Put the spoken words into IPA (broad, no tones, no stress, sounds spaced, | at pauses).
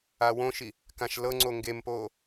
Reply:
a w õ ʃ i | k ã ʃ l ɤ ŋ͡ǀ o ŋ ɡ e m p oː